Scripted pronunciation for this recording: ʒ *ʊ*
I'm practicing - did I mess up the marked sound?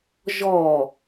yes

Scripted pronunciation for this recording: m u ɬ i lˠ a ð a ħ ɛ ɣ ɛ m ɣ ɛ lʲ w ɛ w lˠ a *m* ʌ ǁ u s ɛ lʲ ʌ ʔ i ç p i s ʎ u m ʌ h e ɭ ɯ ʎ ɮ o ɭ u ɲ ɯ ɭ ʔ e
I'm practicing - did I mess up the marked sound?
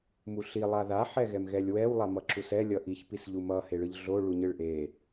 no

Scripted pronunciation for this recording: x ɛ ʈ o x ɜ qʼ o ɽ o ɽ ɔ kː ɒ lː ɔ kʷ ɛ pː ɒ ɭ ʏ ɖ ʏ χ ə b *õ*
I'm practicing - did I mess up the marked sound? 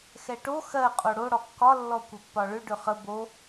yes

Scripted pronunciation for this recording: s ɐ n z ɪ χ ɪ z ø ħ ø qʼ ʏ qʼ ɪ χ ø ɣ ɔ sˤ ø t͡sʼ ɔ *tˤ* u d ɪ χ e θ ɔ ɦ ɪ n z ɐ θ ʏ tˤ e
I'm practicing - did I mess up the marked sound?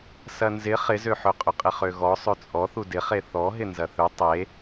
yes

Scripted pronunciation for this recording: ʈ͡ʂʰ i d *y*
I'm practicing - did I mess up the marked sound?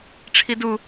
yes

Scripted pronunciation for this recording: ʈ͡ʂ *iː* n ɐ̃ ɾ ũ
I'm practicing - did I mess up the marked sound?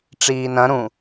no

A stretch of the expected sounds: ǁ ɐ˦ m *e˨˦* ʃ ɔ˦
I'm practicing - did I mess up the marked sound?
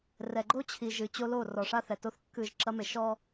yes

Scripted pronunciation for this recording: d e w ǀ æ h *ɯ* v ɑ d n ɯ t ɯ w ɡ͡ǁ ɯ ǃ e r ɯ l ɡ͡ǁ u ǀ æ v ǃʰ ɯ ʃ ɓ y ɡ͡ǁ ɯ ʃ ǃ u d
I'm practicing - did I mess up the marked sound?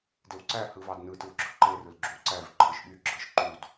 no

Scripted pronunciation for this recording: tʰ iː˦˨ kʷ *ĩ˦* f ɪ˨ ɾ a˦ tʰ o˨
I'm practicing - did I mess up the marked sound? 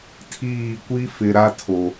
yes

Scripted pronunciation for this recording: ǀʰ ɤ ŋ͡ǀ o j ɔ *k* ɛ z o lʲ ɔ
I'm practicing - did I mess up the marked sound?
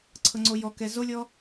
no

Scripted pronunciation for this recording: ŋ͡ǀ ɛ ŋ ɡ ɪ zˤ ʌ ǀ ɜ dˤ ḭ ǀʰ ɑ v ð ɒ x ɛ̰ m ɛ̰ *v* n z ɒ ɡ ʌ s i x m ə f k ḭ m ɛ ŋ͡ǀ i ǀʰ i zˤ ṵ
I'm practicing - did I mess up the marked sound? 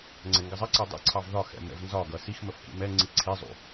no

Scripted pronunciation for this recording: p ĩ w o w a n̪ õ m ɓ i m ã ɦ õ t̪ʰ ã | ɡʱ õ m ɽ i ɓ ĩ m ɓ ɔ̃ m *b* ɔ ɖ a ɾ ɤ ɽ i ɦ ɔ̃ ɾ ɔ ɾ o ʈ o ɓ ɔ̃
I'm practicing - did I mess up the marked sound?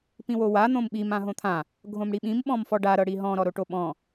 yes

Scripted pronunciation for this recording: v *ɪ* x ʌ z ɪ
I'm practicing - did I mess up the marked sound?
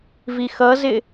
yes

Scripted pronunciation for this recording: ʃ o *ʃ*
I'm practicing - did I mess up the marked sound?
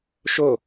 yes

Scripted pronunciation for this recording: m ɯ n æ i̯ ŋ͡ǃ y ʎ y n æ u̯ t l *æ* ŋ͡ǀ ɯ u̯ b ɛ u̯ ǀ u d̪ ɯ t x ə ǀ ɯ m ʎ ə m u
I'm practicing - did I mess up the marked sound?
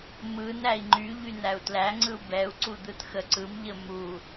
no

